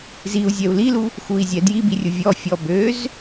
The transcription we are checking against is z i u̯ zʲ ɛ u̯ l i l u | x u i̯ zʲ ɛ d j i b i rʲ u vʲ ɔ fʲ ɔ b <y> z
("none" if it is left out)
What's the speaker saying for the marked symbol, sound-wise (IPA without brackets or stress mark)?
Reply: ø